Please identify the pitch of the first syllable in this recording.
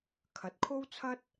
rising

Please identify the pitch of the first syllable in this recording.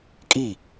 falling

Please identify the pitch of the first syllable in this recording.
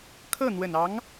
falling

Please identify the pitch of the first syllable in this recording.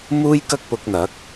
high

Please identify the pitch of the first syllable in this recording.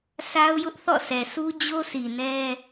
high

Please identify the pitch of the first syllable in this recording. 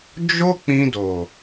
high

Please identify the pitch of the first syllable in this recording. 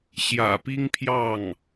low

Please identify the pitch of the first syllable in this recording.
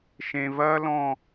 high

